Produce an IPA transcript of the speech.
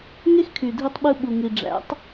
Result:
ŋe˦xkʰy˨dʱi˧tˤɓɯ˧ ɓu˨ŋi˨ɖ͡ʐæ̰˨˦tˤ

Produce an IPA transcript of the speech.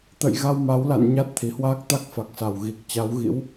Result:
t̪ə̰˧˨j ɣa˧wma˨˦wla̰˧˨n ɲa˦˥t̚t̪ʰi˨˩hwaː˦˥k̚t̪a˦˥k̚ fa˨˩k̚sa˨˩w ɣi˨˩k̚ t͡ɕa˨˦wɣḭ˧˥w

